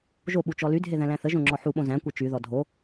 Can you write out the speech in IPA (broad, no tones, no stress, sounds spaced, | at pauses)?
ʒ o ɓ u t͡ʃ ɔ l y dʱ e ð æ̃ l æ̃ θ ə ʒ õ ŋ͡ǁ ɔ ħ u ɓ õ z æ̃ kʷ e t͡ʃ y ð ɔ dʱ o